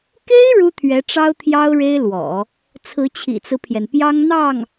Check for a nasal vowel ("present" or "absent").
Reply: absent